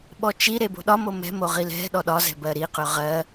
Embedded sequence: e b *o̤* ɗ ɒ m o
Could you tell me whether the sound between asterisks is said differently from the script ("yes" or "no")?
no